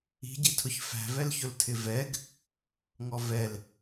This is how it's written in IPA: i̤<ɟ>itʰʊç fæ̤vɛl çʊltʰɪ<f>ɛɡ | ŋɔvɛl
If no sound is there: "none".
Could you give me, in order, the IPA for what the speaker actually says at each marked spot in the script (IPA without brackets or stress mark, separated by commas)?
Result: ɟ, v